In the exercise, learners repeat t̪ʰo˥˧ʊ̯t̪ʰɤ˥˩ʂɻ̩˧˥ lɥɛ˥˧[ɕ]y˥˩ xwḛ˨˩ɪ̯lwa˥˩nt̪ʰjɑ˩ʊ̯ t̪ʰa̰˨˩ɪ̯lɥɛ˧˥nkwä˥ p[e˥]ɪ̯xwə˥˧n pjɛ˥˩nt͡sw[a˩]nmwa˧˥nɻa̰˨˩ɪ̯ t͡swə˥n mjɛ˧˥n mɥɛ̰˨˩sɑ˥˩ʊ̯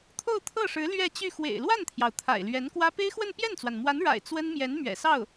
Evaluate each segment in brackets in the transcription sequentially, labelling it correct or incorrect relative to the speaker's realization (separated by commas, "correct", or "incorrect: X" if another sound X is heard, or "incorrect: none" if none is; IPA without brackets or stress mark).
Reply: incorrect: t͡ɕ, correct, correct